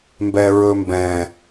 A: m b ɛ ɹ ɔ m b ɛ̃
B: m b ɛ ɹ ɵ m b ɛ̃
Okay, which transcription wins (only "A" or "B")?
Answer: B